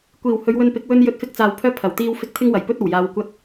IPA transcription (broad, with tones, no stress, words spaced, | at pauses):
kʷiː˨˩whɵ˨˧ɥwɵ˧npɪ˨˥k̚ wɵ˥n jɵ˧t̚fɪ˧k̚t͡saː˨w pʰœː˥pʰɐ˨˩w t̪iː˥wfɪ˥k̚ t̪ʰɪ˥ŋwɐ˨˩jpɵ˥t̚ɐ˨˩w jaː˧wkʷɐ˥t̚